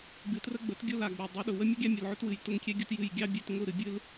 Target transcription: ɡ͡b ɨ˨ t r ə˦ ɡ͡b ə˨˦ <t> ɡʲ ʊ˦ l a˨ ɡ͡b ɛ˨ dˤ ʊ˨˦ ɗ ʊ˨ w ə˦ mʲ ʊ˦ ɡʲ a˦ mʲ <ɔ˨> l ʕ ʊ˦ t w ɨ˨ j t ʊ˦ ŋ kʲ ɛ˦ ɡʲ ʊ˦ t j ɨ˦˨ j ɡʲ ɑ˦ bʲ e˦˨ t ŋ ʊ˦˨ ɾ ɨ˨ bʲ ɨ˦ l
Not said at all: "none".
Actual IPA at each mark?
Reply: t, ə˨

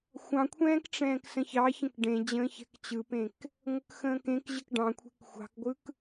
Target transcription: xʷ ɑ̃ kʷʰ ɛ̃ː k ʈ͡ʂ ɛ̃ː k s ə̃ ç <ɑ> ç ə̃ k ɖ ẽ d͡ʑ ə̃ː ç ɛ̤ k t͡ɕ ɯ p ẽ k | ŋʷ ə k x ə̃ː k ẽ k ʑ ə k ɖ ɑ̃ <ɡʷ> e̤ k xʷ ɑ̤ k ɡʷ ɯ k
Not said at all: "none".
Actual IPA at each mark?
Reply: ɑ, kʷʰ

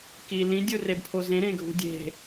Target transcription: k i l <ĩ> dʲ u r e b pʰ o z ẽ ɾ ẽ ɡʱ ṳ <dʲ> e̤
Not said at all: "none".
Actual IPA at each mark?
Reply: ĩ, dʲ

